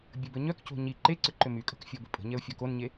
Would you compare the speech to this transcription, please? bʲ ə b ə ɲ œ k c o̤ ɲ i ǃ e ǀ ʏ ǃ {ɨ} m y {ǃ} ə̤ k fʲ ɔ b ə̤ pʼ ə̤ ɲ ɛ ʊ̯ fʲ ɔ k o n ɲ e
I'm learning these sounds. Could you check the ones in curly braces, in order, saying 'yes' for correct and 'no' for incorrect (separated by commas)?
no, no